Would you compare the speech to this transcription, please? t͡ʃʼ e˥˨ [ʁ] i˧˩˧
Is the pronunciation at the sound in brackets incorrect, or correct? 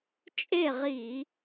correct